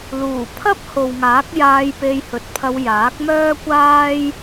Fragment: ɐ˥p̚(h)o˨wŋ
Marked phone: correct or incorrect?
correct